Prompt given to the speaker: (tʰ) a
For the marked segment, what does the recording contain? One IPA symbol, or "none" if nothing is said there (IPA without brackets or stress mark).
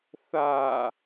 θ